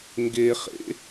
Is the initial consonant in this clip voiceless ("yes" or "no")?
no